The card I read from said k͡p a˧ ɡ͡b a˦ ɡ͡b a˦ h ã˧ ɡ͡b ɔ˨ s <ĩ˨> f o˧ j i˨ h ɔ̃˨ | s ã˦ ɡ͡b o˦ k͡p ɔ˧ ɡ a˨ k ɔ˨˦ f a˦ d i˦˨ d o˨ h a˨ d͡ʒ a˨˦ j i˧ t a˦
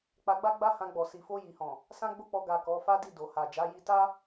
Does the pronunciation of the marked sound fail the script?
yes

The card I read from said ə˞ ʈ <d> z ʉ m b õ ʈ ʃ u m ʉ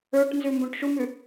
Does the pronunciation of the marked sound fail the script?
yes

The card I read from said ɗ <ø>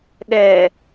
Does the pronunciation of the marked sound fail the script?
yes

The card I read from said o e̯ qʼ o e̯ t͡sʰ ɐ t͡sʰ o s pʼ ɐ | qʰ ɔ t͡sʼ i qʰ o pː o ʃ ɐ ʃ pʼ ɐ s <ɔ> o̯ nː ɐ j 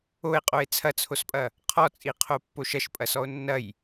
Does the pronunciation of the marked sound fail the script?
no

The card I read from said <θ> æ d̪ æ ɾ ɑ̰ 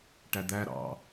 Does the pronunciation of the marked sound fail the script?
yes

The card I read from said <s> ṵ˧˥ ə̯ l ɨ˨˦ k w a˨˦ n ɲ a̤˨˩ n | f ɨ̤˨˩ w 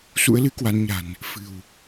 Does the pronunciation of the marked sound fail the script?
no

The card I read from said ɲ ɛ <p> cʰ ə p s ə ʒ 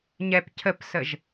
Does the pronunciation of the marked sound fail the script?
no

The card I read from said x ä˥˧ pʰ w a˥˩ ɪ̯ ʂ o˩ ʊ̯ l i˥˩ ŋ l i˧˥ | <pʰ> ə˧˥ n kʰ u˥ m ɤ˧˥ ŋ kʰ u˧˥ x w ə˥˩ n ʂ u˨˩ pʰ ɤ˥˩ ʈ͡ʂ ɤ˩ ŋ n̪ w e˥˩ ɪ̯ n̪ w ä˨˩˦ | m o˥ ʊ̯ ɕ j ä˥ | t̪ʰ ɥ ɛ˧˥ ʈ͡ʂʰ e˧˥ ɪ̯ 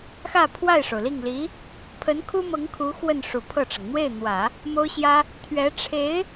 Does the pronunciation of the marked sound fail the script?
no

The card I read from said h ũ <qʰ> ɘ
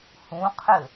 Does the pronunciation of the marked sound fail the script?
no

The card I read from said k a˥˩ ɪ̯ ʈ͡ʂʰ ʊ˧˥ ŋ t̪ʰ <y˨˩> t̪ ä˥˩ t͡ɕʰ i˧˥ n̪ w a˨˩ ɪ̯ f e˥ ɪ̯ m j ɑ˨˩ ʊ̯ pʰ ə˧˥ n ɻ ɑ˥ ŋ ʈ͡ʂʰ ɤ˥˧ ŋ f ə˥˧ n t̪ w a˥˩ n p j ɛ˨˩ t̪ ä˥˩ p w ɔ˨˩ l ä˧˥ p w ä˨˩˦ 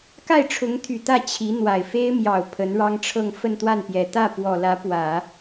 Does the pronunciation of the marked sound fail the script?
no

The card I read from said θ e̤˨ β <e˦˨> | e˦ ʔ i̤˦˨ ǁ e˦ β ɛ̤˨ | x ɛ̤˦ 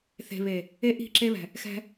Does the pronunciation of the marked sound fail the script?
yes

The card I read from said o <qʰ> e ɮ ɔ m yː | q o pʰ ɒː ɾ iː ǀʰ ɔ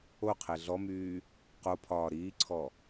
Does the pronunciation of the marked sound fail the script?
no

